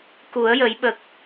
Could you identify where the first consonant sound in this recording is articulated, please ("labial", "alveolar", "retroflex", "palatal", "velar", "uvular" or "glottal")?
velar